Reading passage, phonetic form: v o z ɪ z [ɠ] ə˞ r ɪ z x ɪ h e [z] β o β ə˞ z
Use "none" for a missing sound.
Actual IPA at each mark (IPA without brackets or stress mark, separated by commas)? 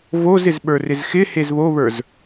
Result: ɓ, z